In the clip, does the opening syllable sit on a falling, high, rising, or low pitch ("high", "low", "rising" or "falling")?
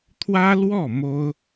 high